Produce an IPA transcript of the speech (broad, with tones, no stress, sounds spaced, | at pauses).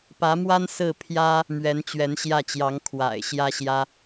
p ä˧˥ m w a˥ n s ɹ̩˥˩ pʰ j ä˥ | m ɥ ɛ˧˥ n t͡ɕ ɥ ɛ˧˥ n ɕ j ä˥˩ t͡ɕ j ɑ˧˥ ŋ kʰ w a̰˨˩ ɪ̯ ɕ j ä˥ ɕ j ä˥